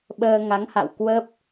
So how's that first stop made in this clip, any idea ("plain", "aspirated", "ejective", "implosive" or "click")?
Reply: implosive